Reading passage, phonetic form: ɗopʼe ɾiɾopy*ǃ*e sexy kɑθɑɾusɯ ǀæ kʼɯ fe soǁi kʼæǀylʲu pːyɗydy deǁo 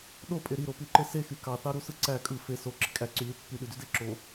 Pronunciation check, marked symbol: correct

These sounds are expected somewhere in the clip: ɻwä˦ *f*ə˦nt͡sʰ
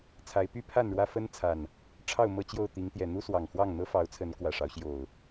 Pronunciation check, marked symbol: correct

